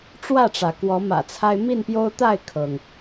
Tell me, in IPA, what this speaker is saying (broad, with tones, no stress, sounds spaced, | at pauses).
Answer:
ʈ͡ʂ w ä˥˨ ʈ͡ʂ ä˩ k w ɔ˨˦ m ä̰˨˩ t͡sʰ a˦ ɪ̯ m i˥˨ n p j o˦ ʊ̯ t̪ a˥˨ ɪ̯ kʰ ɤ˩ ŋ